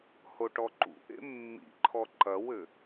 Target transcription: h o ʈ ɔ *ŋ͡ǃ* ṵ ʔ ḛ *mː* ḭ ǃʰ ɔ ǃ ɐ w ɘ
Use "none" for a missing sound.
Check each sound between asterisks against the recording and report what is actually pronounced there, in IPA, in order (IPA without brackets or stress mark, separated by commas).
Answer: ǃ, mː